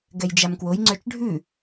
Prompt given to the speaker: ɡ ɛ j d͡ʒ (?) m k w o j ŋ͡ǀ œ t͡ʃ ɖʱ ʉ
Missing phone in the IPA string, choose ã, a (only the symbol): a